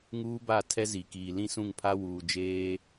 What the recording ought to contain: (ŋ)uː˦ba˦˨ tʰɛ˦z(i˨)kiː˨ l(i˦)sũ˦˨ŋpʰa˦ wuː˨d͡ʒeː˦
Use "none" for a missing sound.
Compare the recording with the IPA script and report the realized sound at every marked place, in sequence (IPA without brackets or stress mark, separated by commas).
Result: ŋ, i˨, ĩ˦